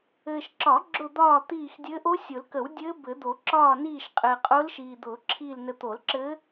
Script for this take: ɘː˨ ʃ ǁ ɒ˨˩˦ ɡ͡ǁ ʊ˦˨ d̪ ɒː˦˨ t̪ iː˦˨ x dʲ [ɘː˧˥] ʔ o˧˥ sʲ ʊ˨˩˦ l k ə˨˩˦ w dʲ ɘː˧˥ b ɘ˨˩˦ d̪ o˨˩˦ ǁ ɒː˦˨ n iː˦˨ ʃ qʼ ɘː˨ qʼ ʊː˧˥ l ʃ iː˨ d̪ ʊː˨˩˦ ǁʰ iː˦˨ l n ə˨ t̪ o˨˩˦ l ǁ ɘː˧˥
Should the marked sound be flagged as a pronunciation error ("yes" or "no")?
no